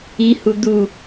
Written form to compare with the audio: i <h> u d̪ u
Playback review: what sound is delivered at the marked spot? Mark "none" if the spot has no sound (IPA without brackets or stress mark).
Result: h